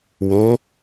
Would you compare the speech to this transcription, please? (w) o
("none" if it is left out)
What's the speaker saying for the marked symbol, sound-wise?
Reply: w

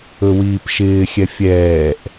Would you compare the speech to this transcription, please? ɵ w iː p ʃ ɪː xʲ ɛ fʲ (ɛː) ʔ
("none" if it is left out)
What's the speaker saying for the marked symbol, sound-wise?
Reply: ɛː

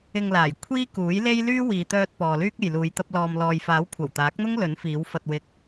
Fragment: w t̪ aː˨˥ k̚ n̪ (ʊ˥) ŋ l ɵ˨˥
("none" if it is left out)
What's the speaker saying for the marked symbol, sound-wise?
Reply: ʊ˥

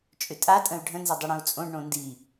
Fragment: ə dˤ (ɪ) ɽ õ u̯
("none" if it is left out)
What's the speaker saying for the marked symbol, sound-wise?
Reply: ʏ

